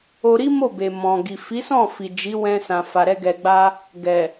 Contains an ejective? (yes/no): no